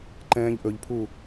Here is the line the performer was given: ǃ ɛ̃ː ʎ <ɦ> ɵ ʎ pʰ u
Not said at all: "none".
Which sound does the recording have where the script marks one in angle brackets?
ʔ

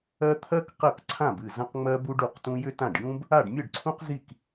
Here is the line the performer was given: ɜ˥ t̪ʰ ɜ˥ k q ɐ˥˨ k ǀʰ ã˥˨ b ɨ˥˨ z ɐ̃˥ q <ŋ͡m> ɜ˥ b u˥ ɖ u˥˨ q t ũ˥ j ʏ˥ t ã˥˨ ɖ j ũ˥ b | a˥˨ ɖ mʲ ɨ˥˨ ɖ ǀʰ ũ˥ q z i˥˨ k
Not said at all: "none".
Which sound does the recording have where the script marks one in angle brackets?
ŋ͡m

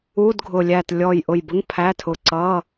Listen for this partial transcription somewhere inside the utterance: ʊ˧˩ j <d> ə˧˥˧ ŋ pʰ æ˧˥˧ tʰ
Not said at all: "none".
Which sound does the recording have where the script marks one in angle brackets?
b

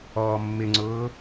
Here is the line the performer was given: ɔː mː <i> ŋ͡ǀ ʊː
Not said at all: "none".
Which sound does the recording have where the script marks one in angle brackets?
ɪ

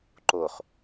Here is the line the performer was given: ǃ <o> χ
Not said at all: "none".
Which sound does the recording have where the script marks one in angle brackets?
o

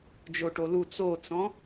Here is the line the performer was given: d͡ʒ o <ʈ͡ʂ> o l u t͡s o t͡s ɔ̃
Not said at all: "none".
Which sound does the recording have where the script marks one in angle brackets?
ʈ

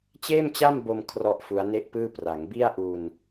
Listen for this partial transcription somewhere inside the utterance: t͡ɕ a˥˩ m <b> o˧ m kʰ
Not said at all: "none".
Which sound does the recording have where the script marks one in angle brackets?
b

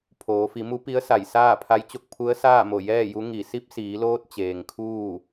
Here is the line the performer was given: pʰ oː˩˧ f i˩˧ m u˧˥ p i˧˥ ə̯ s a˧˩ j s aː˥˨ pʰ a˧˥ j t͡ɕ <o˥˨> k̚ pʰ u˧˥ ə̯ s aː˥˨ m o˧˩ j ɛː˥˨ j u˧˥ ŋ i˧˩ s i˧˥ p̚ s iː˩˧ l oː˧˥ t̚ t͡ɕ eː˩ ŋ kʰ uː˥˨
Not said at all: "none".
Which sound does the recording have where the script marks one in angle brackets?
o˥˨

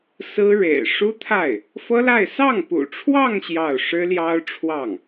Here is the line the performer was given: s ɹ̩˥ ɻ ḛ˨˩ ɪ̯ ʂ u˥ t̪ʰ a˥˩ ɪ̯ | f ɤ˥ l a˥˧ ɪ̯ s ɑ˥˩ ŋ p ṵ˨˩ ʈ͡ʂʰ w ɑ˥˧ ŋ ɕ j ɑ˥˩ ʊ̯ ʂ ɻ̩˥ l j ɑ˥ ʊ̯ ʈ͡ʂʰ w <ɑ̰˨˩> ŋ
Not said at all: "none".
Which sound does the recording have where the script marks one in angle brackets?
ɑ˥˩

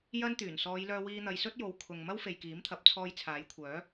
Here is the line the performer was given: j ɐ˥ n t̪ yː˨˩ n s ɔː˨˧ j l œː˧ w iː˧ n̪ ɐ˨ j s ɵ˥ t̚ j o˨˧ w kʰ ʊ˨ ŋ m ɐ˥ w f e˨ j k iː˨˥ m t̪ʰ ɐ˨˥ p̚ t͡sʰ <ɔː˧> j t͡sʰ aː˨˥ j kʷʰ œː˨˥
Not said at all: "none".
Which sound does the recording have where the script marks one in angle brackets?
ɔː˧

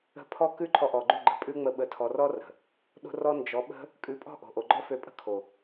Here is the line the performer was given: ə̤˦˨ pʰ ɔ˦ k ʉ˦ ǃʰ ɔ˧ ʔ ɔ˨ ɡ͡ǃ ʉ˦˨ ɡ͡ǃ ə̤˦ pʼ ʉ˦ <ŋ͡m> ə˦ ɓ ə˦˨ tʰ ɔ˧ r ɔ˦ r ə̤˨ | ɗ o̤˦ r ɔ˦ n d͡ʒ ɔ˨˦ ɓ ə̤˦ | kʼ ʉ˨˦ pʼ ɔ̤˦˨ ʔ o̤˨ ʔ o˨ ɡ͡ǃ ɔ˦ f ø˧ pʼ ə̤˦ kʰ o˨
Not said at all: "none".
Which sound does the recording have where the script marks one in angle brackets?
ŋ͡m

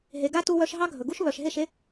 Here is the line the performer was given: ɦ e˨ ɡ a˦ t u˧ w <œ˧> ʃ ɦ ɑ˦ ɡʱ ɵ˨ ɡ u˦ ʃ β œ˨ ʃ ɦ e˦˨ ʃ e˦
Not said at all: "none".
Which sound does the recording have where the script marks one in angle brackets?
œ˧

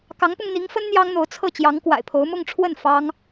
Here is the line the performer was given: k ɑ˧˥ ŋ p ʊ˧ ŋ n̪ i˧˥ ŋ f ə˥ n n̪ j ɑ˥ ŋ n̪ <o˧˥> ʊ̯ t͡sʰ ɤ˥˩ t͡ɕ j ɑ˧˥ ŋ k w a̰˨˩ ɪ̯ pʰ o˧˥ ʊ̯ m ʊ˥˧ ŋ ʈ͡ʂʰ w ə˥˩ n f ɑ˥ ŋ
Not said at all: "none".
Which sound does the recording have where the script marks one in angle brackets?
o˧˥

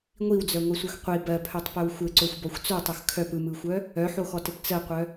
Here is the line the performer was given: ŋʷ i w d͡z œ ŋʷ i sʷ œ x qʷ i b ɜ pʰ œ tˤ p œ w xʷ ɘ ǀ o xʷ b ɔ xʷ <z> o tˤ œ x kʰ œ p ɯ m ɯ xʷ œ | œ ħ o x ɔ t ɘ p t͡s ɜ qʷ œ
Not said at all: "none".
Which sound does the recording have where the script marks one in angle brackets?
t͡s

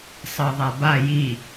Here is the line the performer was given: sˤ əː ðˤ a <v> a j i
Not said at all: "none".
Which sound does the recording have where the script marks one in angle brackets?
b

